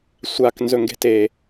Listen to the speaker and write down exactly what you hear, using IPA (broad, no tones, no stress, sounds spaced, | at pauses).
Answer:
sʷ a k n z ɵ ŋ ɡ e̤ t e